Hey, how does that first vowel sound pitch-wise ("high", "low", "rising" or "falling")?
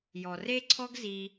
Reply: low